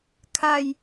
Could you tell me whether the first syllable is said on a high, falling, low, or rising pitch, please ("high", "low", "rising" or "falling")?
falling